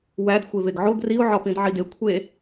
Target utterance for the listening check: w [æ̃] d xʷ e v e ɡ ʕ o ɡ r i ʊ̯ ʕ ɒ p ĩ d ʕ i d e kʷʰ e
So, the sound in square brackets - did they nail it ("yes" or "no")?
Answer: no